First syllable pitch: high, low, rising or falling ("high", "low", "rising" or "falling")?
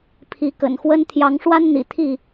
rising